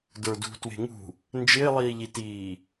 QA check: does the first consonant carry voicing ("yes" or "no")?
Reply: yes